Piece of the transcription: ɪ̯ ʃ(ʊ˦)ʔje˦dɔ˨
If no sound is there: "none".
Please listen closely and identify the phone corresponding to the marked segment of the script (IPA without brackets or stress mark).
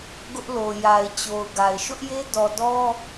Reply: ʊ˦